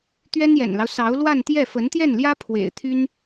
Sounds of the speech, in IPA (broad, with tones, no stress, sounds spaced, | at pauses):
t̪ ɥ ɛ˥ n j ɛ̰˨˩ n l ɑ˦ ʊ̯ s ɑ˧˥ ʊ̯ l w a˥˧ n t̪ j ɛ˥˩ f ə˧˥ n t̪ j ɛ˥˩ n l j ä˥ pʰ w ḛ˨˩ ɪ̯ t̪ʰ y˥ n